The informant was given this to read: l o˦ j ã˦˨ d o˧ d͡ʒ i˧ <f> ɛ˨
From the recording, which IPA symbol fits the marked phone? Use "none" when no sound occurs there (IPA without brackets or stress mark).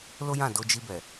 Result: b